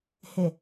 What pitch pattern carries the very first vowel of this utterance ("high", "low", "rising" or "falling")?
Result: low